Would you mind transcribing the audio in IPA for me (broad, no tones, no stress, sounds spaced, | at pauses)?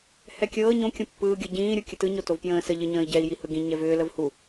h ɛ kʲ ɤː ɲ õ kʲ õ pː ɯː ɡʲ ɤ ɟ ĩː ɾʲ u kʲ ə t ɯ ɲ o t o v p j ə̃ː s ə ʎ ɘ ɲ ə̃ː i̯ ɟ ɛ i̯ j i h ɯ ɡ ĩ ɲ ɛ v ʏː l ə v h u